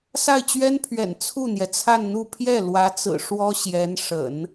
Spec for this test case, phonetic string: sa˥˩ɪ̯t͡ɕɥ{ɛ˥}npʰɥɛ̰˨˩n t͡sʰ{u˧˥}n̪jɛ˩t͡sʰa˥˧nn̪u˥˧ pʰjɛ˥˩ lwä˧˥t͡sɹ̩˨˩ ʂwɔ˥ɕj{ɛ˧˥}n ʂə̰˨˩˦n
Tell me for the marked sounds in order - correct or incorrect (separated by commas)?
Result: correct, incorrect, correct